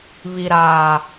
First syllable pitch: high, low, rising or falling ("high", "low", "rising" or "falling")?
low